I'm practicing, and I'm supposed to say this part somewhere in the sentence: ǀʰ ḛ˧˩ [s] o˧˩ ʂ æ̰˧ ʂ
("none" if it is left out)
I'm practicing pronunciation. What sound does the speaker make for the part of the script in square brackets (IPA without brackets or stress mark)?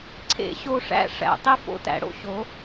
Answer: ɕ